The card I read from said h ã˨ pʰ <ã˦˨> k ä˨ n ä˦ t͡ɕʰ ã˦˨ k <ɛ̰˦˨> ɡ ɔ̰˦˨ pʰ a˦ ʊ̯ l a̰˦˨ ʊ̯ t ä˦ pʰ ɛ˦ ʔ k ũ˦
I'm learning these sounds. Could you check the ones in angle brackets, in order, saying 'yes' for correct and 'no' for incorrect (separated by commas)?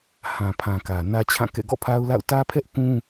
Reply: no, yes